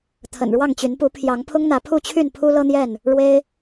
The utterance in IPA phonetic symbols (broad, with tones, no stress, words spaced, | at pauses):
t̪ʰə̰˨˩nɻwɑ˥˨ŋt͡ɕy˨˦n pu˨˦pʰjɑ˨˦ŋpʰʊ˦ŋn̪ä˨˦ pʰu˥˨t͡ɕʰy˥˨n pʰu˦ lɤ˦n̪jɛ˥˨n | ɻwe˦ɪ̯